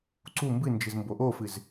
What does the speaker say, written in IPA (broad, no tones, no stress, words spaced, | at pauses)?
ǀu mbɨnd͡ʒɨzmbo ʔofɨz